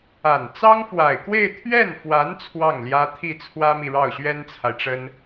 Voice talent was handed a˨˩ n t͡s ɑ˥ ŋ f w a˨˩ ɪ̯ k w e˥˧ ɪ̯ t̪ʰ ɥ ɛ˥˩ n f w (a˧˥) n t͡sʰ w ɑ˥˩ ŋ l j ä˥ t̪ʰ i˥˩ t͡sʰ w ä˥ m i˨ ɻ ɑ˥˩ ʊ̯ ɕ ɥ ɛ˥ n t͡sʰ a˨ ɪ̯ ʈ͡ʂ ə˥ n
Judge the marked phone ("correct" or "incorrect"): correct